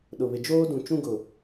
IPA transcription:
ɗ ʊ˨ β ɪ˨ d͡ʒ oː˦ d ũ˨ t͡ʃ ũ˦ ɡ ʊ˨

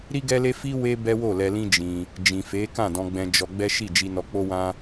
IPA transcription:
ɾ i˦ ɡ ɛ˦ l e˦ f i˦ w e˦ b ɛ˦ w o˦˨ l ɛ˧ l ĩ˦ d͡ʒ ĩ˧ | d͡ʒ ĩ˨ f e˨˦ k ã˦˨ d ɔ̃˧ ɡ͡b ɛ̃˧ d͡ʒ ɔ˧ ɡ͡b ɛ˦ ʃ i˦˨ d͡ʒ i˧ n ɔ˧ k͡p o˦ w ã˦

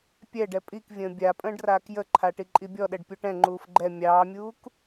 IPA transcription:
pʲ ɛ ɖ ɛ pʼ i k vʲ ə̃ː bʲ a pʼ ə̃ː ɖ r aː k j ə ǃʰ a ʈ i ǃʼ i bʲ ɔ ɗ ɛ ɖ pʲ u ʈ ɛ̃ ŋ͡ǃ uː f ɡ͡ǃ ɛ mʲ ɑː mʲ uː k

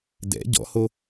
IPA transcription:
d ɛ̰ ɟ ɔ̰ h o

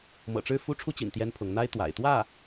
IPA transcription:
m ɤ̰˨˩ ʈ͡ʂ ɻ̩˥˩ f u˥ ʈ͡ʂʰ u˥ t͡ɕ ḭ˨˩ n t̪ j ɛ˥ n pʰ ʊ˧˥ ŋ n̪ a˥ ɪ̯ t̪ w a̰˨˩ ɪ̯ t̪ w ä˥˩

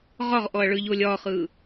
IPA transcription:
ʁ ɒ ʁ ʔ ɔ ɐ̯ ɭ ɯ ʎ o lʲ ɒ χ ɯ

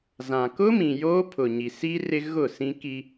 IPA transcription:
z ã˨ k ʊ˦ m ĩ˨ j oː˦ pʰ ʊ˨ ɲ i˨ s i˦ r ɪ˦ ɣ ʊ˦˨ s ĩ˦ k i˦

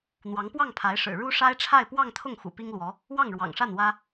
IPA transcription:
n̪ w ɑ˧˥ ŋ p w ɑ˥˩ ŋ pʰ a˧˥ ɪ̯ ʂ ɻ̩˨˩ ɻ u˥ ʂ a˥ ɪ̯ ʈ͡ʂʰ a˥˧ ɪ̯ p w ɑ˥˧ ŋ t̪ʰ ʊ˥˩ ŋ x ṵ˨˩ p i˥ ŋ l w ɔ˧˥ | w ɑ˥˩ ŋ ɻ w ɑ̰˨˩ ŋ ʂ a˥˩ n w ä˥

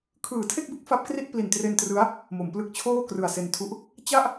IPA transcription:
kʰ ɯː˩˦ tʰ e˥˩ k̚ b u˦˥ k̚ f a˦˥ p̚ k r i˥˩ t̚ p l i˨˩ n t r e˧ n t r ɯ˦˥ a̯ | m o˩˦ m p l ɯ˦˥ k̚ t͡ɕʰ oː˥˩ k r ɯ˨˩ a̯ s e˧ n tʰ u˦˥ ʔ | t͡ɕ a˥˩ ʔ

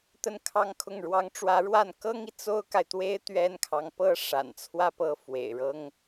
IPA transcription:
t̪ ə˥˧ n kʰ ɑ˥˧ ŋ kʰ ʊ˥˩ ŋ ɻ w ɑ˧˥ ŋ ʈ͡ʂ w ä˧˥ ɻ w a˥˩ n k ɤ˥ ŋ i˨ t͡s o˥ ʊ̯ k a˨ ɪ̯ t̪ w e˥ ɪ̯ t̪ ɥ ɛ˥ n kʰ ɑ˧˥ ŋ p ɤ˥ ʂ a̰˨˩ n t͡sʰ w ä˥˧ p ɤ˥˩ f w ḛ˨˩ ɪ̯ ɻ ɤ˥ ŋ

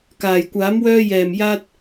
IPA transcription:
k aː˨˩ j kʷ aː˨˥ m w œː˧ j ɛː˨˩ m j aː˥ t̚

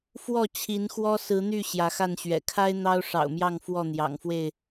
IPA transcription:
f w ɔ˥˨ t͡ɕʰ i˨˦ n x w ɔ˦ s ɹ̩˨˦ n̪ y˥˨ ɕ j ä˨˦ x a˥˨ n ɕ ɥ ɛ̰˨˩ kʰ a˦ ɪ̯ n̪ ɑ˦ ʊ̯ ʂ ɑ̰˨˩ ʊ̯ m j ɑ˥˨ ŋ f w ɔ˥˨ n̪ j ɑ̰˨˩ ŋ f w e˥˨ ɪ̯

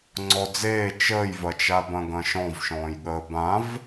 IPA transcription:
ŋ͡ǀ ɔ d͡z eː t͡ʃ əː j v ɐ t͡ʃ a b ɐ̃ ɡ ɐ̃ ʃ ɔ̃ v ʃ ɔ̃ː j ɠ əː b ã v

